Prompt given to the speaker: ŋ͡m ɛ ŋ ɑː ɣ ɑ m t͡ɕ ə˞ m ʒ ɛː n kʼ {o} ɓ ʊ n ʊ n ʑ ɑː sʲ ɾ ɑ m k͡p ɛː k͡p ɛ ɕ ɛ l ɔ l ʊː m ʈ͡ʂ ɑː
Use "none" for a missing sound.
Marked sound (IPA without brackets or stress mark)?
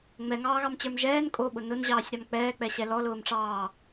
o